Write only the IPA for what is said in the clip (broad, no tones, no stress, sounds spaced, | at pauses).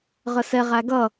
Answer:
ʁ ə s ɛ ʁ æ ɡ ʌ